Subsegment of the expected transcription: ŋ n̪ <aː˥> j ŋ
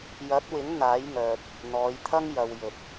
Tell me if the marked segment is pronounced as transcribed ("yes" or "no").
no